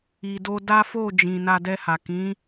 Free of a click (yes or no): yes